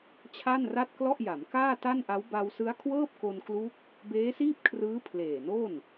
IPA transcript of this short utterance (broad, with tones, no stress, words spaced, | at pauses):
t͡ɕʰa˥˩nra˥˩t̚klɔ˥˩ʔja˩˦m kaː˥˩ta˥˩nʔa˦˥w ba˧wsɯ˦˥a̯ kʰwɤː˥˩p̚ko˧nklu˦˥k̚ | beː˦˥siː˥˩p̚kʰrɯː˦˥ pʰleː˨˩no˥˩n